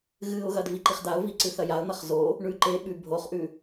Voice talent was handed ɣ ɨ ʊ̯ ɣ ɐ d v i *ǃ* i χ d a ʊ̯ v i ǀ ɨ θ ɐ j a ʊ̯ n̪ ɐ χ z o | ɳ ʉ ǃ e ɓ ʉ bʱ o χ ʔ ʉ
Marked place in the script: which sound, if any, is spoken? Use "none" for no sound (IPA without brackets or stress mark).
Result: ǃ